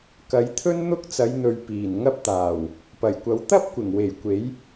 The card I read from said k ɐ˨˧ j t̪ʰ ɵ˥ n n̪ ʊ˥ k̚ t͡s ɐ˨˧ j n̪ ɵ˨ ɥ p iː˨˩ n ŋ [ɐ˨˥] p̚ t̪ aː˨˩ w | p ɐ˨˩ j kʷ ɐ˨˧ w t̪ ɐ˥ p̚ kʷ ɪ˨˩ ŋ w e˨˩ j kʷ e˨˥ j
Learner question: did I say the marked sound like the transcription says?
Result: no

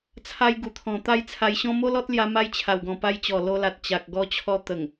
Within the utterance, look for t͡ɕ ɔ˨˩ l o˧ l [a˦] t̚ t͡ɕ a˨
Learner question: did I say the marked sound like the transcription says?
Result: no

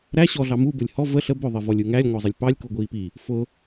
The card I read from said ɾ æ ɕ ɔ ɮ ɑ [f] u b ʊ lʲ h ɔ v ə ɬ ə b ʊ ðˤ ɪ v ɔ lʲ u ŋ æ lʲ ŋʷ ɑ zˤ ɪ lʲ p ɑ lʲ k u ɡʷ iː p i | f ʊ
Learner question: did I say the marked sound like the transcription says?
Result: no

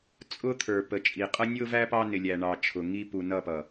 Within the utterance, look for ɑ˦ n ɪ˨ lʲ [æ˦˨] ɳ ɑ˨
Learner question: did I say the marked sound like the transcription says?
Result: no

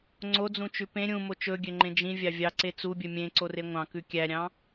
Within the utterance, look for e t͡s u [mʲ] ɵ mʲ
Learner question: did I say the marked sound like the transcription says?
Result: no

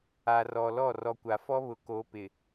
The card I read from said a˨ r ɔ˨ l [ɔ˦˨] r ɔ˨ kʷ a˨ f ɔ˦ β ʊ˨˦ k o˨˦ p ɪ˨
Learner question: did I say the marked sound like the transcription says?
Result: yes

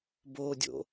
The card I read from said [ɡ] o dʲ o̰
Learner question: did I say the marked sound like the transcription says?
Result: no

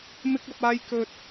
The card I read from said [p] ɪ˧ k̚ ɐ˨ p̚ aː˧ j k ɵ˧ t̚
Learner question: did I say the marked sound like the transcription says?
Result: no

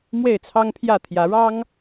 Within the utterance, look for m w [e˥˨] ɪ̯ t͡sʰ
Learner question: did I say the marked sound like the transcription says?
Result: yes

